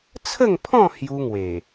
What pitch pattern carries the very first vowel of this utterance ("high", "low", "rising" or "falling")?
falling